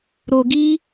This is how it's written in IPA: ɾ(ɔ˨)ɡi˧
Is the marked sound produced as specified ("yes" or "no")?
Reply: no